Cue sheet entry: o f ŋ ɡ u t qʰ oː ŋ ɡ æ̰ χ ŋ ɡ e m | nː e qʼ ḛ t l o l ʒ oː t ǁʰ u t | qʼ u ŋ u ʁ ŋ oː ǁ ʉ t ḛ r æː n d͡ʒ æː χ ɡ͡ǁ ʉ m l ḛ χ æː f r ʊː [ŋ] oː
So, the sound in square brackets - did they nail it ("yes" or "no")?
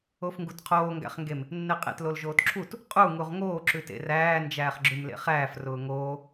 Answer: yes